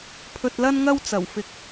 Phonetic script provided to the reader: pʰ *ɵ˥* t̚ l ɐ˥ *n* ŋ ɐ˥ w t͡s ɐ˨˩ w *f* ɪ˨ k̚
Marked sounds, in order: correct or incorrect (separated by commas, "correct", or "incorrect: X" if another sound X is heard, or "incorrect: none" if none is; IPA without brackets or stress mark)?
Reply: incorrect: ɵ˧, correct, correct